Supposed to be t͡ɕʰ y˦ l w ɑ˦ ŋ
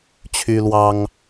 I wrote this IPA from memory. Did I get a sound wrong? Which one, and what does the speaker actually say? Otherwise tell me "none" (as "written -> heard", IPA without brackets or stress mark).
none